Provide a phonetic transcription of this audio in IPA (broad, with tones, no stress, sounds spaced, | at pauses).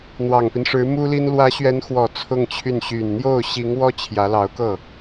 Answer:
n̪ w ɑ˨˩ ŋ p i˦ n ʂ ɻ̩˧˥ m u˥ l i˥ n l w ä˧˥ ɕ ɥ ɛ˧˥ n x w ɔ˨˩ t͡sʰ ʊ˥˧ ŋ t͡ɕʰ y˥˩ n ɕ y˨˩ n n̪ j o˥˩ ʊ̯ ɕ i˧˥ ŋ w ɔ˥ t͡ɕʰ j ä˧˥ l ɑ˧˥ ʊ̯ k ɤ˥˩